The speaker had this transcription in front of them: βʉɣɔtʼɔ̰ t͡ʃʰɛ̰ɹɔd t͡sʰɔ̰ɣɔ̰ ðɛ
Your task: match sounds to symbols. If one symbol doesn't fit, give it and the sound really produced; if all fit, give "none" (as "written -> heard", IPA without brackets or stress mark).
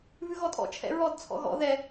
none